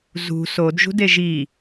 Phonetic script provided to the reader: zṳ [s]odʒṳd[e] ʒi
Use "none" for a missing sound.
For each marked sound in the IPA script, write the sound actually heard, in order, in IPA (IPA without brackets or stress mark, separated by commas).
s, e